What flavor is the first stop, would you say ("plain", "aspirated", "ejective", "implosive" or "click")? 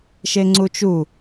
click